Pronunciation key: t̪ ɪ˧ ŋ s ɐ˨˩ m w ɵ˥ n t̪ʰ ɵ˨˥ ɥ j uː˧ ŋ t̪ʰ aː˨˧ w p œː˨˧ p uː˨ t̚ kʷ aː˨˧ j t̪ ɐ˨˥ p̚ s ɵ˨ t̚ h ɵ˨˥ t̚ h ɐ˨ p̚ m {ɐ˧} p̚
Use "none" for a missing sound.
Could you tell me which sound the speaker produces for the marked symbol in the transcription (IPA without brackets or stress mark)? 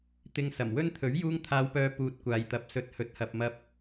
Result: ɐ˧